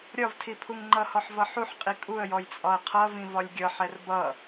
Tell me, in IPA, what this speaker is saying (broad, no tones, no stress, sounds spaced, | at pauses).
ɾʲ ɒ v tʰ i pʰ u ŋ ŋ͡ǃ ʌ h ɔ ħ v ʌ ħ u ħ qʼ i kʼ u ə̯ j ɔ j t͡sʼ ɒ ə̯ qʰ ʌ v ĩ v ɒ lʲ ɡʲ ʌ ħ ɛ r b ʌ